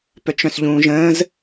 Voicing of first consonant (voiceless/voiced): voiceless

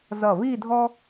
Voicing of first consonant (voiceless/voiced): voiced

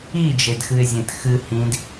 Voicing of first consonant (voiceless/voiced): voiced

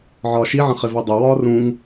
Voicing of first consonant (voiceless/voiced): voiced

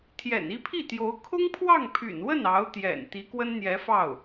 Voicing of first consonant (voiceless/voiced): voiceless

